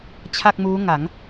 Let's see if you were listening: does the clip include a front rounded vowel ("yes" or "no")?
no